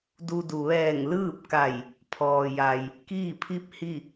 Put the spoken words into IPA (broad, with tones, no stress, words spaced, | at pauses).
du˧du˩ ʋɛː˧˩ŋlɯː˥˨p̚ka˧˩j | pʰɔː˩ja˩j | kiː˥˨pʰi˥˨p̚hi˥˨